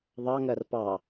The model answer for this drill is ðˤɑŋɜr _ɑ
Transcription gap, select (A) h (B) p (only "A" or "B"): B